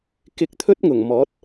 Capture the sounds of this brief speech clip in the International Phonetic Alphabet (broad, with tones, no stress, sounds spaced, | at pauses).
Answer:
k ɪ˧ k̚ t̪ʰ ɵ˥ t̚ ŋ ʊ˨˩ ŋ m ɔː˨˥ t̚